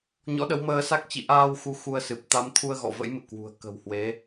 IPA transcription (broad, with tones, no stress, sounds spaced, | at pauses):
ɲ ɔ̰˧˥ ɗ ə˨˦ w m əː˧ s a˦˥ k̚ t͡ɕ ḭ˧˨ ʔ aː˧ w x u˨˦ x u˧ ə̯ s ɨ˨˩ p̚ t̪ a˨˦ m t̪ʰ u˧ ə̯ ɣ ɔ̰˧˨ v ə̰˧˥ j m ɨ̰˧˨ k w ṳ˨˩ ə̯ k ə̤˨˩ w h w e˨˦